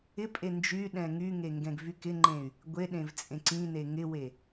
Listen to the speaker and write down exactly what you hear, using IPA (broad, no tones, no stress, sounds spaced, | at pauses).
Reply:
ɪ pʼ e n d͡ʒ y ɗ ɛ̃ ŋ y ŋ e ŋ ɡ ɛ̃ ɡ v y k ɪ ŋ͡ǃ ẽ y̯ | ɡʷ e ɗ ẽ v t͡sʼ ẽ ǀ ĩ n e ŋ ɪ w e